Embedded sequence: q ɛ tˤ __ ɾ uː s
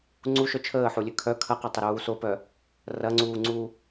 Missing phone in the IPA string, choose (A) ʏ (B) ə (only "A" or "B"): A